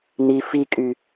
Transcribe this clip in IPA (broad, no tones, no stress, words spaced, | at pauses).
ni fikʼy